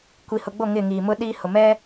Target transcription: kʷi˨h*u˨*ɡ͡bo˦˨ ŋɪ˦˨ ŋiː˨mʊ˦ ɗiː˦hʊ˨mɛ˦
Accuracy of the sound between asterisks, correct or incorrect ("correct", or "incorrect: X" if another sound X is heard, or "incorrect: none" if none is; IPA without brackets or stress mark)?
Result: incorrect: ʊ˨